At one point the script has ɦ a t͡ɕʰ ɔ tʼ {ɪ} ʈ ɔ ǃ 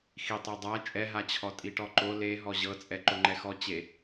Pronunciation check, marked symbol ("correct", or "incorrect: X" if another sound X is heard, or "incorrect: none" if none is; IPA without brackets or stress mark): incorrect: i